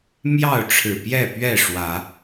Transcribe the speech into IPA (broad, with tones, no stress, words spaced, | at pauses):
mjɑ˥˨ʊ̯ʈ͡ʂʰɻ̩˨˩pjɛ˥˨pɥɛ˥˨ ʂwä˨˦